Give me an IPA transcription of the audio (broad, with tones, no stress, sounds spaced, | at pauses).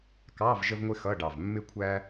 k ɑ˧˥˧ v ʒ ə˥ v ŋʷ ɪ˥ x ʌ˧˥˧ ɖ ɑ˨˩ v mː ɪ˥ kʷʰ æ˥